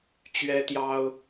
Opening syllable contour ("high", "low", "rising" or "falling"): high